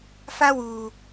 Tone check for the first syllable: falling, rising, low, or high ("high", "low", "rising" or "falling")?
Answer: high